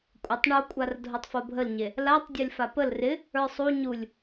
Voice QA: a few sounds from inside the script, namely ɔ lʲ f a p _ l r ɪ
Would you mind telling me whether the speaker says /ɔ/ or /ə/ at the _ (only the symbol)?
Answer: ə